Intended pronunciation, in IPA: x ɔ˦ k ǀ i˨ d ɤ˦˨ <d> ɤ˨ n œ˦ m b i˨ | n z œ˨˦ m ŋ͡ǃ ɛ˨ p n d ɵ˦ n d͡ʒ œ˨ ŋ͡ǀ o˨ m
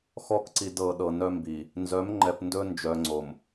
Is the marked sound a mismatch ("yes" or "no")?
yes